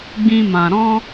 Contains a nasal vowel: yes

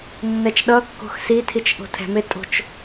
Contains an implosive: yes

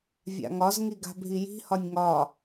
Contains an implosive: no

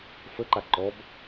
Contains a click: yes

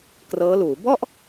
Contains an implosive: no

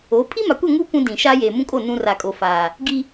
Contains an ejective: yes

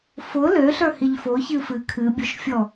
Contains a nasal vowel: no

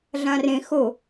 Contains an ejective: no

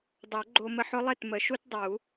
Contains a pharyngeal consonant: yes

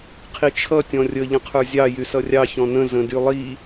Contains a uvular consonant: yes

